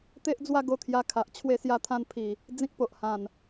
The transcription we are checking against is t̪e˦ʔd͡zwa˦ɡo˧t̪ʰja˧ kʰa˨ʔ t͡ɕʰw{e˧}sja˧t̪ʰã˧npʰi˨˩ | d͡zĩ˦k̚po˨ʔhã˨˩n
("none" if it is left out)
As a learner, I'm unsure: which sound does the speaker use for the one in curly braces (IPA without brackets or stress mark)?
e˧